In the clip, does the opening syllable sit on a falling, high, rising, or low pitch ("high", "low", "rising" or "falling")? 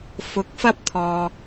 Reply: rising